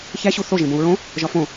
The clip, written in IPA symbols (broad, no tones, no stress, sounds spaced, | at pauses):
ç æ ɕ u θ o ʒ ẽ b õ u̯ ɹ õ | ʒ ɒ f õ